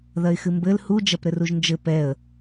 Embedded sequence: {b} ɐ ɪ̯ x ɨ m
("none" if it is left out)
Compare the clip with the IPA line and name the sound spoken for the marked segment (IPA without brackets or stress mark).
ð